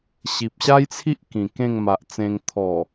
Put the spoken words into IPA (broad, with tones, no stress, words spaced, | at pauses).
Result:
ɕi˨p̚ɕa˦jt͡sʰi˦ʔ kĩ˨˩kẽ˥˧ŋma˨ʔt͡sẽ˧ŋ t̪ʰɔ˨˩